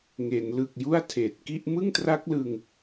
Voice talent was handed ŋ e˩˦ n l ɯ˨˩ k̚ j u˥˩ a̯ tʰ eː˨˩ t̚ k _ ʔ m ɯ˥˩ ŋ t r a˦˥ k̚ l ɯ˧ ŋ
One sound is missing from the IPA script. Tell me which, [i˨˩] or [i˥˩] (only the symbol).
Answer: i˥˩